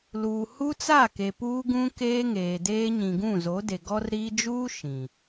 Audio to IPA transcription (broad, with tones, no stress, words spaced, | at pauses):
luː˨hu˦t͡sa˦˨ke˨ puː˦ɡũ˦ keː˦ŋeː˨deː˦ ɲĩ˨ɡũ˦˨zo˨˦de˨ ɡɔ˦rɾiː˦ d͡ʒuː˦ ʃĩ˨